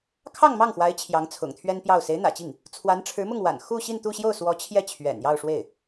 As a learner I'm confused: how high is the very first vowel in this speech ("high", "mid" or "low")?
low